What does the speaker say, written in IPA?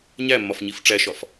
ɲ æ mː ɒ f ɲ i f ʈ͡ʂ æ ʃ ɒ f

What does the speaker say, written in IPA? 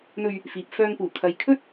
n̪ ɵ˧ ɥ | f iː˨ p̚ f œː˧ ŋ p uː˨˩ kʰ ɐ˨ j kʰ ɵ˥ t̚

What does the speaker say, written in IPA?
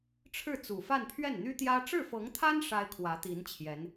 ʈ͡ʂʰ ɻ̩˥˩ t͡s u˨˩ f a˥˧ n pʰ ɥ ɛ˥˩ n n̪ y˥ t̪ j ä˥ ʈ͡ʂ ɻ̩˥˩ f ɤ˧˥ ŋ t̪ʰ a˥ n ʂ a˥ ɪ̯ kʰ w ä˧˥ t̪ i˧˥ n t͡ɕʰ j ɛ˧˥ n

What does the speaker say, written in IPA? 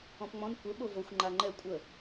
ɔ̃ p ŋ͡m ɔ̃ n kʷ ə ɓ o v o xʷ ŋ͡ǃ a ŋ͡ǃ ɛ kʷʼ ə

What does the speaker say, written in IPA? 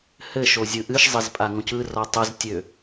h ɘ ʃ o zʲ ɯ ʔ ɨ ʃ zˤ ɘ z pʼ a ŋ õ c ɯ r ɔ tˤ ə z tʲ ø

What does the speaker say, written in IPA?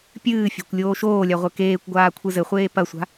pʲ ɨː fʲ a̤ kʷ lʲ oː ʃ oː lʲ a ʁʷ ɘ k eː kʷ ɡʷ aː kʷʰ ɨ z ɘ χʷ eː p ɐ sʷ a̤

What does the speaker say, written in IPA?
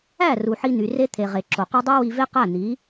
æ˦˨ r u˨ ħ i˧ n̪ y˨ r e˦ t̪ʰ e˨ ʁ e˨ ǁ o˨ q u˧ dˤ u˦ w i˧ v e˦ q æ˦˨ n̪ i˨˦

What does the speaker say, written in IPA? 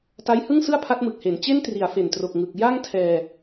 t a˦˥ j h ɯ˥˩ ŋ s ɯ˥˩ a̯ pʰ a˦˥ t̚ m ɯ˨˩ k̚ h e˩˦ n t͡ɕ e˥˩ n t r i˩˦ a̯ f e˨˩ n t r o˨˩ k̚ ŋ ɯ˨˩ k̚ j a˥˩ ŋ tʰ ɛː˧

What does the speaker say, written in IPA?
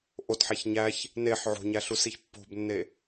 ʔ o t ħ æ ç ɲ æ ç | n e ħ ʕ o̤ ɲ æ ɬ u s i ç pː o̤ b nː e

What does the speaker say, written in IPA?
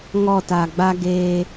ŋ ɔ˦˨ t a˨ ɡ͡b a˦ ɡ eː˦

